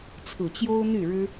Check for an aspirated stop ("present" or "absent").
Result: present